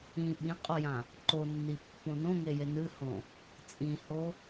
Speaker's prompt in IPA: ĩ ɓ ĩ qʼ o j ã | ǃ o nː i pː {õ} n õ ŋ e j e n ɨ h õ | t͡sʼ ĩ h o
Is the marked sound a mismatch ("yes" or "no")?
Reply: no